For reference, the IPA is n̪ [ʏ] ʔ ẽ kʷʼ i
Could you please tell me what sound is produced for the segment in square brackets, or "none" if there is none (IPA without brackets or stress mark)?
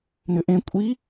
ʏ